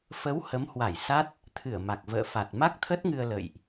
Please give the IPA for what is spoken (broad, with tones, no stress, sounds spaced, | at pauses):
f ə˨˦ w h ə˨˦ m h w a˧˩ j s a˦˥ t̚ | t̪ʰ ɨ˧˩ ə̯ m a˨˩ k̚ v ə̰ː˧˨ f a˨˩ t̚ m a˦˥ k̚ t̪ʰ ə˦˥ t̚ ŋ ɨ˧ ə̯ l ə̰˧˨ j ʔ